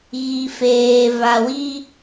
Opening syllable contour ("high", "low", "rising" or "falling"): low